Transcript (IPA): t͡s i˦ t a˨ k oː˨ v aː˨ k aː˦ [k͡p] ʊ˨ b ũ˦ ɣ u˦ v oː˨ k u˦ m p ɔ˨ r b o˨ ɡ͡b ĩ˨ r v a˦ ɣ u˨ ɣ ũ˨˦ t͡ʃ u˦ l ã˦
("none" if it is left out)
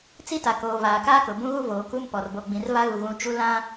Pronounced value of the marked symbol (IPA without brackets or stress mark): k